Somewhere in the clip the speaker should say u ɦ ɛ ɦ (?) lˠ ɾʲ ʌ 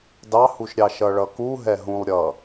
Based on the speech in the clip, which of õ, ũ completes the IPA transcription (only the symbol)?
ũ